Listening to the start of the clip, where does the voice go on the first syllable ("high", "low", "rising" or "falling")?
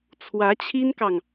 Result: rising